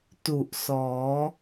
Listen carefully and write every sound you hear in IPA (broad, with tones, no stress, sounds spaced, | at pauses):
t u˨˩ ʔ s ɔː˩˦